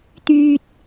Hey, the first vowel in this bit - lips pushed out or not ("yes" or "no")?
yes